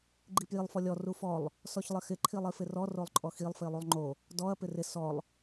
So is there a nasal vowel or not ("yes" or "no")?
no